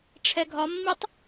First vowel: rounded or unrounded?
unrounded